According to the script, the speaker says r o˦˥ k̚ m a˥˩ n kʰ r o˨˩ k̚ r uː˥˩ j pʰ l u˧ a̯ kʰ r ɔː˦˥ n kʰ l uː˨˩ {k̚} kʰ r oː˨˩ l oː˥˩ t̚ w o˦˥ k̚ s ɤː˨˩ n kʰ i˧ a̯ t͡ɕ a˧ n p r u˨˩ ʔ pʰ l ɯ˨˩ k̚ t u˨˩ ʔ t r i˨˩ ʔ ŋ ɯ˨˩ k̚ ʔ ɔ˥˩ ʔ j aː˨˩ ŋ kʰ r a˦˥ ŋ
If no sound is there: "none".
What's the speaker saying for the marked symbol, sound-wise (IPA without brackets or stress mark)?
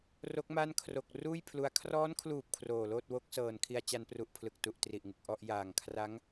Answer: p̚